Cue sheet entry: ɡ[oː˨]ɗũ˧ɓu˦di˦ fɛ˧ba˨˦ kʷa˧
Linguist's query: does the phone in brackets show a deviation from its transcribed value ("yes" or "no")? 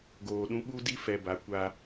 no